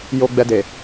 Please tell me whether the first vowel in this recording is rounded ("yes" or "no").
yes